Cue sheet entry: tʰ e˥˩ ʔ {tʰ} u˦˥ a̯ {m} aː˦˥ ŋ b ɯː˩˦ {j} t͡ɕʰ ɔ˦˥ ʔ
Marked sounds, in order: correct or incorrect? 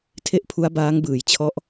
incorrect, incorrect, correct

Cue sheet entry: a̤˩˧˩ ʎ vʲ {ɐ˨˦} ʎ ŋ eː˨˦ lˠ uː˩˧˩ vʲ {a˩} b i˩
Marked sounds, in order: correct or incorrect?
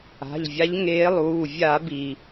incorrect, incorrect

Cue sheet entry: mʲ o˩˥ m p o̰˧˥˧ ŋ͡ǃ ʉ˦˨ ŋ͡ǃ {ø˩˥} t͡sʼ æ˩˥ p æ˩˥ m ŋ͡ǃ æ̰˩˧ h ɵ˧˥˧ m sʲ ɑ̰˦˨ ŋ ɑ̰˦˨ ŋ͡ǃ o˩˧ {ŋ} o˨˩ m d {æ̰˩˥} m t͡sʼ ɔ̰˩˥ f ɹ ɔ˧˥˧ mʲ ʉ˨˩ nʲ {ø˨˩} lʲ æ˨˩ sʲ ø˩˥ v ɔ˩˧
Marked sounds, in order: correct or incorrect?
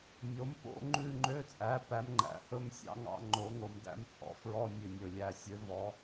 incorrect, correct, incorrect, incorrect

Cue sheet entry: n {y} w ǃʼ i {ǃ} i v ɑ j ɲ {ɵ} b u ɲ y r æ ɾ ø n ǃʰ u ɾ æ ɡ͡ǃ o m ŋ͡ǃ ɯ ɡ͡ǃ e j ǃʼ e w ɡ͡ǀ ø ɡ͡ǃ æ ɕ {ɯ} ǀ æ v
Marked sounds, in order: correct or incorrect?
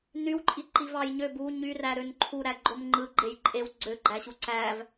correct, correct, incorrect, incorrect

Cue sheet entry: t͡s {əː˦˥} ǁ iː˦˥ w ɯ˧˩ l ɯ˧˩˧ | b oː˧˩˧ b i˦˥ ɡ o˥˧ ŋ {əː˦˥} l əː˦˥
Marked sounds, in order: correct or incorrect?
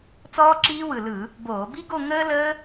incorrect, correct

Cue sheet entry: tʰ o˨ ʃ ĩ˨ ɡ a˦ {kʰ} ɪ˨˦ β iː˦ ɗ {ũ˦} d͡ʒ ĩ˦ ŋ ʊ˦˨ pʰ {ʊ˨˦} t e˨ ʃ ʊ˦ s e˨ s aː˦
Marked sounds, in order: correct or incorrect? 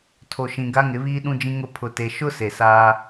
incorrect, correct, incorrect

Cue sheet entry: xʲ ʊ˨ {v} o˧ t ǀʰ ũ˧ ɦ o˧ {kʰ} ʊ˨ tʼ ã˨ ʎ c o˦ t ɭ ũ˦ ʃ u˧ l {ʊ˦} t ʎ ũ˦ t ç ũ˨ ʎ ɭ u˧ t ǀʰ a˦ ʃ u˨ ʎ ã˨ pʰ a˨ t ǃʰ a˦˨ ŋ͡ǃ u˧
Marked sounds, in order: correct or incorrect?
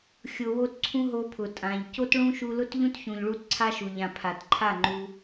incorrect, incorrect, correct

